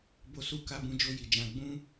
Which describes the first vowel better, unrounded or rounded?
rounded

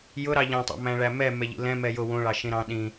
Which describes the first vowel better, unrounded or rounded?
rounded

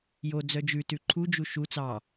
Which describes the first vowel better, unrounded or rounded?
rounded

